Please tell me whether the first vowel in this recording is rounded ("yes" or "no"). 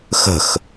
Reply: no